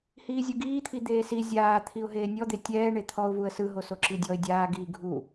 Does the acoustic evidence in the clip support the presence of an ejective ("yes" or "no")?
no